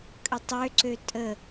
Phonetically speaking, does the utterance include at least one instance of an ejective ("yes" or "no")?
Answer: yes